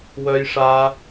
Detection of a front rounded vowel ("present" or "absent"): present